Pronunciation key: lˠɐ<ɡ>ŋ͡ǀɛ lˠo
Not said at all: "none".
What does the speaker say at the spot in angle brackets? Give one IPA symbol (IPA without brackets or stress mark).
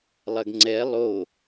ɡ